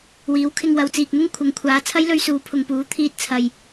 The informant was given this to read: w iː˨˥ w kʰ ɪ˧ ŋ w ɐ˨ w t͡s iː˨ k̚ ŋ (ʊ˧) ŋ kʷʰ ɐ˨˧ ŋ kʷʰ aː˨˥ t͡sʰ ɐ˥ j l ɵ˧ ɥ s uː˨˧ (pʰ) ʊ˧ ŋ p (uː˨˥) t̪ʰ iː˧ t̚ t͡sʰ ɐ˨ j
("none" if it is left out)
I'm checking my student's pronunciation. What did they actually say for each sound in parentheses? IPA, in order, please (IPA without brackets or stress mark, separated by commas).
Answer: ʊ˥, pʰ, uː˨˥